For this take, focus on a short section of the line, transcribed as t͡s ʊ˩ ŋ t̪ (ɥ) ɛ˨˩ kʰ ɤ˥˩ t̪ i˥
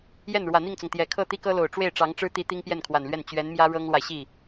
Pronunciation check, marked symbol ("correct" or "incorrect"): incorrect